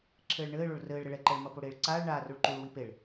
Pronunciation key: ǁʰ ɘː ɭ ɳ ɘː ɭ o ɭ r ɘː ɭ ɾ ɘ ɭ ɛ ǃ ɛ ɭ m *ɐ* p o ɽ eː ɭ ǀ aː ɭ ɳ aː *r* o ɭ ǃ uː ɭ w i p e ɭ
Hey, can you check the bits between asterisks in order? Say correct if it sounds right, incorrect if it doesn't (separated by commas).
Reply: correct, correct